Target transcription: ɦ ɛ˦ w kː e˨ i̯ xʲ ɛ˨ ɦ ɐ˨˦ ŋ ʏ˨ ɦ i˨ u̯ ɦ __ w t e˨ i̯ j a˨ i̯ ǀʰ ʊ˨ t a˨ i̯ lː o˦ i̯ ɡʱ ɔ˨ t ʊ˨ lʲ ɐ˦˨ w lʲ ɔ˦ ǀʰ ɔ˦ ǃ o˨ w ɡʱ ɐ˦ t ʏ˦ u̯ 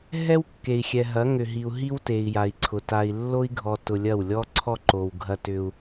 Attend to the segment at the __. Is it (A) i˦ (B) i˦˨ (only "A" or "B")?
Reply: A